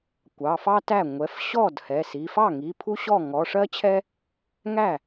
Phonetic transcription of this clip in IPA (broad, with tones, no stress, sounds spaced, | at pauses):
kʷ ɑ˩˧˩ f ɑ˥ t æ˥˩ ŋʷ ɛ˩˧˩ f ɕ ɔ˥˩ d h ɛ˩˧˩ s i˩˧˩ f ɑ˥˩ ŋ i˩˧˩ pʰ u˥ ɕ ɔ˥˩ ŋ ɔ˩˧˩ ʂ ɜ˥ t͡ɕʰ ɛ˥ | ŋ æ˥˩